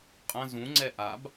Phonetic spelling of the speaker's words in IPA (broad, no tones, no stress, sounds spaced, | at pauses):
qʼ ɐ̃ z ũ ŋ͡ǀ ɛ ʔ a b